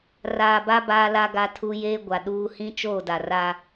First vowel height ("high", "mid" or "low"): low